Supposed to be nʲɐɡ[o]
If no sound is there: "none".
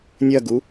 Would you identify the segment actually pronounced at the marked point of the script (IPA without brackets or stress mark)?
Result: u